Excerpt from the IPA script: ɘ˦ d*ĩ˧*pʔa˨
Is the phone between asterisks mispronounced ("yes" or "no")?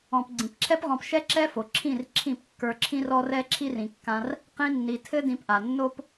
no